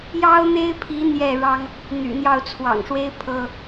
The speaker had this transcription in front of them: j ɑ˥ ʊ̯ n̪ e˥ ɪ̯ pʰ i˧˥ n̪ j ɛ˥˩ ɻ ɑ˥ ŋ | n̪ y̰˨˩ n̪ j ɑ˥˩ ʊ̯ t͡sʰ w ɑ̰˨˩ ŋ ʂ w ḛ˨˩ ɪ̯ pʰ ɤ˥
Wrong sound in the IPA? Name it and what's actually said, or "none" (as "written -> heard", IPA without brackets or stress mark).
ḛ˨˩ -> e˥